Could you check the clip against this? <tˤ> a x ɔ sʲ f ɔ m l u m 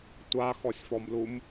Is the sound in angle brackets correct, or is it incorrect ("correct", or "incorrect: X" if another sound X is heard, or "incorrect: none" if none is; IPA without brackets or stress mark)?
incorrect: tʷ